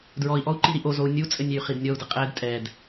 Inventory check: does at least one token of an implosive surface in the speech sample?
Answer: no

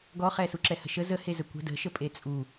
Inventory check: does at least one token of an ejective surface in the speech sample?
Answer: yes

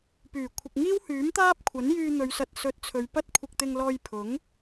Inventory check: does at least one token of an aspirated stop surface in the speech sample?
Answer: yes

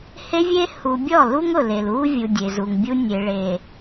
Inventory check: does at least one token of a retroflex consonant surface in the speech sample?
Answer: yes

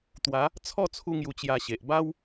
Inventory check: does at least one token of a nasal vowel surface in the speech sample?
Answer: no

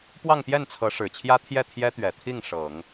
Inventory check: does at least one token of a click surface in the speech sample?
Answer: no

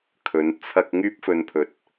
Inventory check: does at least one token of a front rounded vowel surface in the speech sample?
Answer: yes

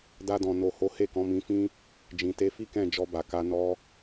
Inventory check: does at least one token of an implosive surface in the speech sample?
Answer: no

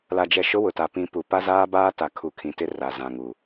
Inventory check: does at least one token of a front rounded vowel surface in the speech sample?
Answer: no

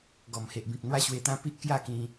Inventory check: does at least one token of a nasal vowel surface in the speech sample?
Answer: yes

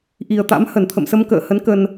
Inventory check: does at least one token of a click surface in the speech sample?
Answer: no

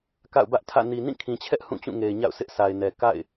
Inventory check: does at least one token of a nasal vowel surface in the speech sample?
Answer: yes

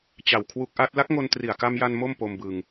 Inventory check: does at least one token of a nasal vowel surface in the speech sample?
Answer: no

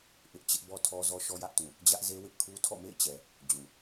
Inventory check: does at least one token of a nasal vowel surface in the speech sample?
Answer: yes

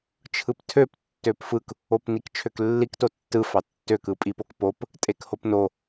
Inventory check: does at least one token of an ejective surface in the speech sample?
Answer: yes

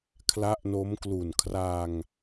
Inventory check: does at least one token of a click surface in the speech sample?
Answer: no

